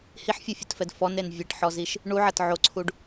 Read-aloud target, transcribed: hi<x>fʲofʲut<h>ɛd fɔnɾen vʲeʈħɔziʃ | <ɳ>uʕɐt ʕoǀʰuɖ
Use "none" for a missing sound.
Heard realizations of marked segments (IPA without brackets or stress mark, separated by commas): ħ, f, ɳ